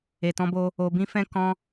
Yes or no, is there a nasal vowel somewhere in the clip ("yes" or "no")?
yes